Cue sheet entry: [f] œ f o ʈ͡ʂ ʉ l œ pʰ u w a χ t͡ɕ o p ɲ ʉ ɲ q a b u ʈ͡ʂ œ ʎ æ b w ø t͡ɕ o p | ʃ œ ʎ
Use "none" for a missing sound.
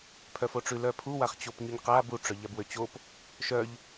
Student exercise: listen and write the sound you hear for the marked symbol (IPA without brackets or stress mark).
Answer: pʰ